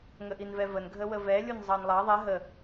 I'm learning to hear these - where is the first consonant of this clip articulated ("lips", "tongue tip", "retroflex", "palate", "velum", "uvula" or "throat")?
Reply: velum